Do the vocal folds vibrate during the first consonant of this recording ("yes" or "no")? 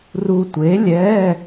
yes